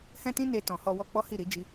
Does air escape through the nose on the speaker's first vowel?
yes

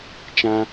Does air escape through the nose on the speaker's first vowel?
yes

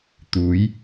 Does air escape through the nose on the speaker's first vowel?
no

